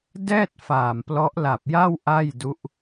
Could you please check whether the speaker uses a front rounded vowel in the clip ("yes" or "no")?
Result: no